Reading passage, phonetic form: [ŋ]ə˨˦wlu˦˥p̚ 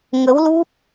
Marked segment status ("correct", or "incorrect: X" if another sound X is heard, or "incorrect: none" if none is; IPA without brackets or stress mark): correct